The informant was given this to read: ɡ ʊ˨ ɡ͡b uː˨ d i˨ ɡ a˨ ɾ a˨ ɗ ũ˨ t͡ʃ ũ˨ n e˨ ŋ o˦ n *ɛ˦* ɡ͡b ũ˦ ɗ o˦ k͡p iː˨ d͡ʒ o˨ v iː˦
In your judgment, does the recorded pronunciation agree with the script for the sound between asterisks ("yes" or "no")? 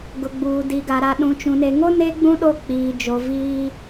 no